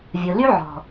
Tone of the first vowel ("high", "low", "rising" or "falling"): low